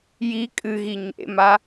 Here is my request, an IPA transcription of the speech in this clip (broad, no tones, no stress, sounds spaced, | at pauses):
j i kʼ ɨ ɣ i ɲ ḛ m a